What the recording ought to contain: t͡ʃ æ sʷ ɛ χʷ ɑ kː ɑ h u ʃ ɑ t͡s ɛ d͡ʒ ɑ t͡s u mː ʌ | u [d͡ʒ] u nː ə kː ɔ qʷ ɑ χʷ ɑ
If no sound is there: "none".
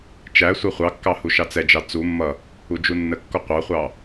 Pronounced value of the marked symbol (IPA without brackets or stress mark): d͡ʒ